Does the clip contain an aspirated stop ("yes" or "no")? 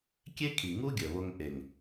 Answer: yes